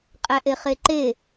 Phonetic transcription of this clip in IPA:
qʼ æ ʔ e χ e ǃ e

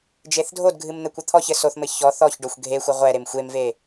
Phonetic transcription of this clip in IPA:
d͡ʒ e θ dʱ o d ɡʱ ɨ m n̪ ɘ kʷ ɘ t̪ʰ ɔ ç ɘ s o θ m ɘ ç ɔ θ ɔ ç ɖ o xʷ ɡʱ e xʷ ɘ ʁʷ ɛ ɾ e m xʷ e m v e

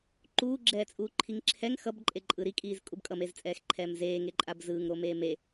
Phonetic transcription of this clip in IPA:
ǃ uː ɡ͡ǁ ɛː t͡sʼ uː ǃʰ i ŋ ǁʰ ɛ ŋ x ʌ b ǃʼ e ǃʼ ɯ ɾ i kʼ iː z kʼ u b kʼ ʌ m e z t͡sʼ ɛː x ǃʰ ɛː m z eː ŋ e ǃʼ a b z ɯː ŋ ɾ o m eː m e

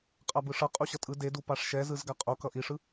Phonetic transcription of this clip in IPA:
qʼ a b ɯ ʂ ʌ qʼ u ɕ ʌ tʼ ɯ d e d u p a ʂ ʃ ɛ z ɯ z ɡ a qʼ o k ʌ ʔ i ʂ ɯ

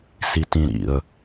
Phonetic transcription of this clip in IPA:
s i t ĩ ɾ ḭ ə̯

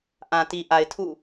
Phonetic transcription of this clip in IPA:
ʔ ã˨ t i˨ ʔ a˨ ɪ̯ tʰ ṵ˦˨

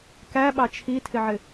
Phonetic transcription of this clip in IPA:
k æ ɓ ɑ t͡ʃʰ i tʰ ɪ ʕ ɪ

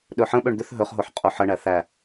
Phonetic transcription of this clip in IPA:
ɗ ɵ ħ ə̃ ɓ ø ɳ d̪ ʏ θ ɦ ɵ χ ɦ o ħ qʼ o ħ ə ɳ æ θ æ

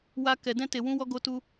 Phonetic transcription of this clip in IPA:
w a˧ k ɛ˧ d ɛ̃˦ t e˧ w ũ˦ w ɔ˦ ɡ o˧ t u˧

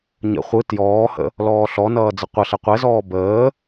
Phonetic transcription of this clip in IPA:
ɲ ə̰ χʷ ɯ t j ɔː h ə̰ | l ɔː ɬ ɔ n ʌː d͡z ə qʷ ʌ ɬ ɛ qʷ ɛ z ɔː b əː

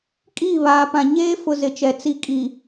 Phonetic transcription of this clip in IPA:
kʼ iː˦˨ β aː˨ p ã˨ ɲ eː˦ f ʊ˨ z ɪ˨ t͡ʃ ɛ˨ t͡s i˨ kʼ i˨

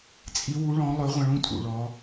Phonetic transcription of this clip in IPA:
t͡sʼ i˧˥ w u˧˥ ɭ ɔ̃˧˥ lˠ ɵ˧˥ ʁʷ ɐ̃˧ ɭ ũ˧˥ tʼ ṵ˩ ɭ ɔ˩˧

